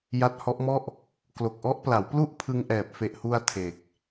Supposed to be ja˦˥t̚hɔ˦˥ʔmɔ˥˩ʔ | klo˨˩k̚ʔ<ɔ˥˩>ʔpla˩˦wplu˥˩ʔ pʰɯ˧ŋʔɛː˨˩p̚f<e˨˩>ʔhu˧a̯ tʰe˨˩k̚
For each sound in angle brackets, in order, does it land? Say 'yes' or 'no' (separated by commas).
no, yes